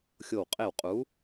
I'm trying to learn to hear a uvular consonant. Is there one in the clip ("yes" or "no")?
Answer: yes